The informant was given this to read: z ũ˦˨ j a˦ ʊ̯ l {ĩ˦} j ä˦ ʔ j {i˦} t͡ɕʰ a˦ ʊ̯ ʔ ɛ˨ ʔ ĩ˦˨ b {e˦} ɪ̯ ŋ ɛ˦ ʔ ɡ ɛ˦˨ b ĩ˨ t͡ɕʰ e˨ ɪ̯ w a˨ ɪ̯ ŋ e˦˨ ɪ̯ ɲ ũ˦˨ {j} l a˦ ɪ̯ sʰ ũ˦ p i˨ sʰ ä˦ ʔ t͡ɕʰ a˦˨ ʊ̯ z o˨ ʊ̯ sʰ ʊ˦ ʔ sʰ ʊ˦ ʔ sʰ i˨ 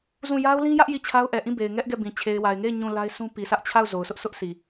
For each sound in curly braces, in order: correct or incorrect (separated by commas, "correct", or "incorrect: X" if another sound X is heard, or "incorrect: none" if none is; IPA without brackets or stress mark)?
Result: correct, incorrect: i˦˨, incorrect: e˨, incorrect: none